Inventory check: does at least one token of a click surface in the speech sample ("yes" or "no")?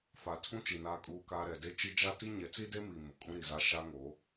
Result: no